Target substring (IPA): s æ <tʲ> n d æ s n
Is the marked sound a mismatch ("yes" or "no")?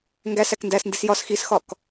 yes